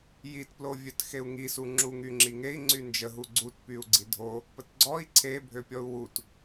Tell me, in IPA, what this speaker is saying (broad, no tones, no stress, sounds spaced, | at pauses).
j i t p l o vʲ œ t x e u̯ ŋ i s u ŋ͡ǁ u ŋ y ŋ͡ǁ i ŋ e i̯ ŋ͡ǀ y n d͡ʒ ə ɦ u ɡ͡ǀ u t p y u̯ ɡ͡ǀ i dʱ o | p ə t ɡ͡ǀ ɔ i̯ ǀʰ e bʱ ø pʲ ɔ u̯ w u t